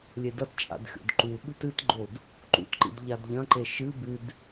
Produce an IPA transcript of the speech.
lʲ e d ɐ t t͡ʃʼ a̰ d xʲ o̰ d ǃ u ɓ ʉ t ɨ t ɡ͡ǃ o d | ǃ ṵ t ǃ ḭ d ʎ a d ʎ ɐ̃ ǃ e ʃ ɨ b ʉ d

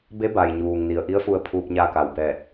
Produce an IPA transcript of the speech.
b e˧˥ b a˩ j ɲ uː˩ ŋ n i˩ ə̯ ʔ i˧˥ ə̯ f u˧ ə̯ pʰ uː˧ p̚ ɲ a˧ k a˩ w b ɛː˧˩ t̚

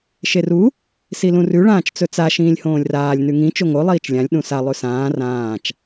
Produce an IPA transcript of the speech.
ʃ e r u | s i l ũ r ʉ ɭ ãː t͡ʃ t͡s ɵ t͡s a ʃ ĩː lʲ h õː lʲ r aː lʲ n ʉ ŋ ĩ t͡ʃ o ŋ o lˠ iː t͡ʃ lʲ ã lʲ ɗ ũ s a lˠ ʉ s ãː r ãː t͡ʃ

